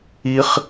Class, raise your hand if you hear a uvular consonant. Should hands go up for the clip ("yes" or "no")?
yes